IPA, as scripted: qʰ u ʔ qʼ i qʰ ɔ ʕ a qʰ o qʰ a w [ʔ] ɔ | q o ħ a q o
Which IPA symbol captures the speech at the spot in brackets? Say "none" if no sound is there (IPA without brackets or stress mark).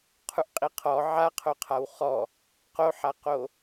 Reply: χ